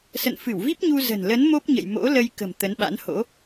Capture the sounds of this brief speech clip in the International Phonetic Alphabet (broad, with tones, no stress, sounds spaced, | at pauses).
s ə̰˧˨ n f ɨ˧˩ w v i˦˥ p̚ ɲ u˧ z ə̤˨˩ n l ə˨˦ n m o˦˥ p̚ ɲ ə̰˧˨ j m o̰˧˥ l ə˧ j k ə̤˨˩ m t̪ ə˨˦ n ɓ a̰˧˥ n h o̰˧˥